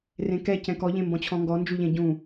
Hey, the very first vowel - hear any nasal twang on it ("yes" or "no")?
yes